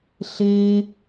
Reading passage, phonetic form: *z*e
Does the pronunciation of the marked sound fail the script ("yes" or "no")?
yes